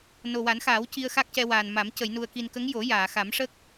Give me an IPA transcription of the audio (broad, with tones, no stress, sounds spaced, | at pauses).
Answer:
n o˨˩ w a˨˩˦ n x aː˨˩˦ w c i˧ ə̯ x a˦˥ k̚ c ɛ˧ w aː˨˩ n m a˨˩˦ m c ə˨˩˨ j n u˨˩ ə̯ k i˨˩ n k ə˧˥ ŋ j o˨˩˦ j aː˨˩˨ x a˨˩˦ m ʂ ə˦˥ k̚